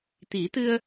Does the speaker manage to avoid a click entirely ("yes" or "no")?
yes